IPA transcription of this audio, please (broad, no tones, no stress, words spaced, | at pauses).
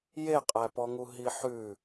jeqʼæpɔŋu ɦiħʉ